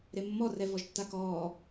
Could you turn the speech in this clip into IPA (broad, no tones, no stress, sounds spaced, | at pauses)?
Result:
ɾ e mː ɔ r ɛ v ɔ ʒ tː a k ɔː